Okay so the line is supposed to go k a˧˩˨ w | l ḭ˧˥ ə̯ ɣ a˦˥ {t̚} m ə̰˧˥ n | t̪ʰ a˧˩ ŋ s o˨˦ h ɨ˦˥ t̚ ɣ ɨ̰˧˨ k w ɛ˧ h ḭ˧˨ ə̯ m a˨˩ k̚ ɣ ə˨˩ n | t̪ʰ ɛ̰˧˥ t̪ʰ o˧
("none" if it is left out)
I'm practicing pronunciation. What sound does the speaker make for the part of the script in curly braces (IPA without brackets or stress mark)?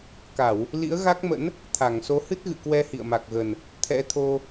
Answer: k̚